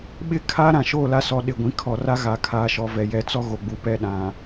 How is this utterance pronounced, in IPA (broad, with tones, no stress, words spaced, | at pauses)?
ɓɪ˦ kʰa˦ɾã˨ ʃoː˦˨la˦sɔ˨ ɗɪ˨ɡʷĩ˨ kʰɔ˨ra˦ ɣa˨kʰaː˨ʃɔ˨vɛ˨ jɛ˨˦t͡sɔ˦ ɣo˨ɡ͡bu˨pɛ˦˨ ɗã˨